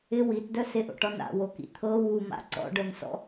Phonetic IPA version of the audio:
ɪ w i t d œ s ɪ ʔ o̰ ʈ ɔ n a̰ w o k ḭ t̪ʰ ɤ w u m a̰ ǀ ɔ̰ ɖ œ n s ɔ̰

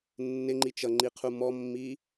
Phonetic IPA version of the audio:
nː ɪ ŋ͡ǃ i t͡ʃ ʌ ŋ͡ǃ i qʰ u m ɔ mː i

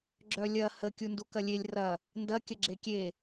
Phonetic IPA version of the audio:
ɡ͡ǁ œ lʲ ɐ h ə kʲ u n d u k ɐ lʲ e lʲ r ɐ | n d ɐ kʲ ə ɡ͡ǁ e kʲ e

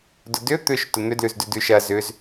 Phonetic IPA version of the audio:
d ʊ d ʏ t̪ ʏ ʃ t ʊ n̪ ʏ d l ʉ z d ʉ d ʉ ʃ ɐ z ʏ z

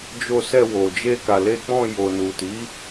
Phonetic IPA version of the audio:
d͡ʒ o˧ s ɛ˧ w o˨ d͡ʒ e˧ k a˨ l e˧ k͡p ɔ̃˧ j o˨ n u˨ t i˨˦

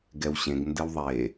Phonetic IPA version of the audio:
ɡ ɛ w ɕ ẽ ɡ n d ɘ w ðˤ e

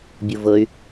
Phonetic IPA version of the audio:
bʲ u v ɤ y̯

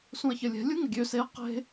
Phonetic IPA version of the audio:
s ũ ɐ̯ ç ə lʲ ɛ̤ lʲ u ŋ ə ɡʲ ø s e ɐ̯ q e̤

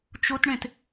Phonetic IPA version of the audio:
t͡ʃ ʊ t ɳ ẽ t

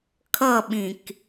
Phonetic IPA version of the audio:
kʰ ʌ ɓ ĩ k

